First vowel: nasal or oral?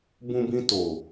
nasal